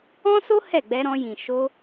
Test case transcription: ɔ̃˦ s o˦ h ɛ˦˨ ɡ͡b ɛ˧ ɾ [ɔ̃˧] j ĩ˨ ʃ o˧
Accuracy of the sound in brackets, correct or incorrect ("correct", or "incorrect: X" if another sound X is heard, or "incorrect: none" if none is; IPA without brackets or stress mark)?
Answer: correct